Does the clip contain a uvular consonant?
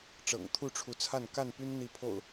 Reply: no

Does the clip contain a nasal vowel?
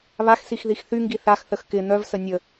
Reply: no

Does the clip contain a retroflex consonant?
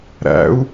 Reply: no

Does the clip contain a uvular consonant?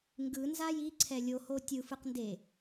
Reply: yes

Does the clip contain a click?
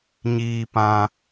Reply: no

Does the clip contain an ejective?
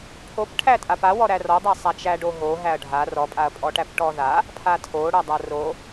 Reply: yes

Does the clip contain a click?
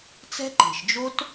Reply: yes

